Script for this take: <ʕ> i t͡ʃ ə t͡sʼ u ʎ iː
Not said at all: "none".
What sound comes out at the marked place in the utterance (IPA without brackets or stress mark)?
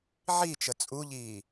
ʕ